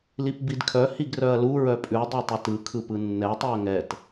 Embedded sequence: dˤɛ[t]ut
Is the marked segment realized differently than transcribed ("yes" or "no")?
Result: yes